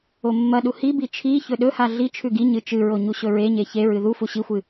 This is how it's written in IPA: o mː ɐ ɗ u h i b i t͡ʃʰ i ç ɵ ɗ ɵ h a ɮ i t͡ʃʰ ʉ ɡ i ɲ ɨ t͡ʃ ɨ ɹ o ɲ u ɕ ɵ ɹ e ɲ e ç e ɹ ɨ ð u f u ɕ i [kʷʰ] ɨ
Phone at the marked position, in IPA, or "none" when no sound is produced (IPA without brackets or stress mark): xʷ